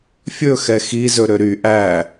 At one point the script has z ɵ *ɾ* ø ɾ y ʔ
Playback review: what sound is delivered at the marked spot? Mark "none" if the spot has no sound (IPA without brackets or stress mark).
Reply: ɾ